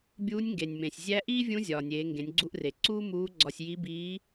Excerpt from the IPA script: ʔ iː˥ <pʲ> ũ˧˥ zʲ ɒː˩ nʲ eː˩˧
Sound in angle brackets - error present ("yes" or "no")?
yes